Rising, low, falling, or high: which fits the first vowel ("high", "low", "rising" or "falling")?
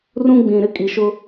high